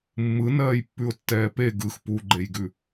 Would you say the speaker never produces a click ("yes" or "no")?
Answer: no